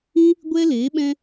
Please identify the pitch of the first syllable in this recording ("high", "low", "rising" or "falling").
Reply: high